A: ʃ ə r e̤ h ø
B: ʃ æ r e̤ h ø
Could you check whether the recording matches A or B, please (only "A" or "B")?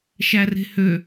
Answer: B